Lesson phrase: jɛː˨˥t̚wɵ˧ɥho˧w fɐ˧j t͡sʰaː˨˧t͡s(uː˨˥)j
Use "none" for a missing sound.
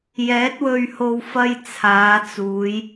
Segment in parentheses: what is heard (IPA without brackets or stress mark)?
uː˨˧